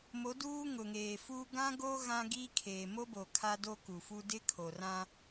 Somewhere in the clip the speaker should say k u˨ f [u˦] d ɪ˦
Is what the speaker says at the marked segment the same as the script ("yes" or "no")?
yes